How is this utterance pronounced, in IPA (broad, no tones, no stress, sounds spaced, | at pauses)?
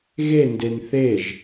ɣ e n d e n θ e ʒ